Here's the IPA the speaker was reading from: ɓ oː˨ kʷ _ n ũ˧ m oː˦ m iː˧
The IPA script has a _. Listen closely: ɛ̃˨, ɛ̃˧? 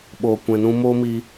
ɛ̃˨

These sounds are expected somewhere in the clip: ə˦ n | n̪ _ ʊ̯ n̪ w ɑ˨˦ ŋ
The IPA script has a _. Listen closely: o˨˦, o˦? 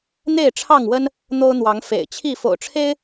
o˦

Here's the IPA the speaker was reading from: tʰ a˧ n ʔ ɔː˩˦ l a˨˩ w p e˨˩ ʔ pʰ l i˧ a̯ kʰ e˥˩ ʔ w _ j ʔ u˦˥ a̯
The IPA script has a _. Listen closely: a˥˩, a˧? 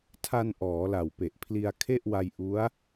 a˧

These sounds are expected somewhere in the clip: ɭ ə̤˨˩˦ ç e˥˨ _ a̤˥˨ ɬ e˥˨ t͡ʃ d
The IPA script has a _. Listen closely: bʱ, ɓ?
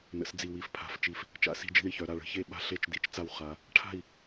ɓ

